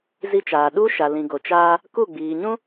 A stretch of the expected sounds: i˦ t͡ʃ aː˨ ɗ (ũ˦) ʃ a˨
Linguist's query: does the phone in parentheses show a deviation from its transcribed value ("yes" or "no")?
yes